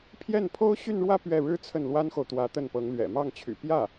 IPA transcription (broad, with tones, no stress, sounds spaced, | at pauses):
pʰ j ɛ˥˩ n pʰ o˥ ʊ̯ ɕ y˥˧ n ɻ w ä˥˧ p ɥ ɛ˥˩ ɻ ɻ̩˥ t͡sʰ ə˥˩ n l w a˥ n x o˨ ʊ̯ t̪ w ä˧˥ t̪ ə˥˩ n p ɤ˧˥ ŋ l ɥ ɛ̰˨˩ m ɑ˥˩ ŋ t͡ɕʰ y̰˨˩ p j ä˥˩